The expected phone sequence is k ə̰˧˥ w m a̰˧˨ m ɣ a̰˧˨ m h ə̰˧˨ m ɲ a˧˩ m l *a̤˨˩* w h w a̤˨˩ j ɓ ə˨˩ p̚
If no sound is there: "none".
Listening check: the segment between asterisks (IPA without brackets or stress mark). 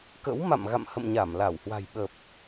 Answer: a˧˩